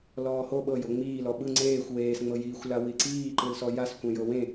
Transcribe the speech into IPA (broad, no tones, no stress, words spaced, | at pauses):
lɔːho ɓɤjo ŋ͡miːlɔ ɓɯ ŋ͡ǀeːxʷ weːsŋ͡mɤjiːxʷla wiǀiːǃɯlsɔ jas kʷẽjɤwẽ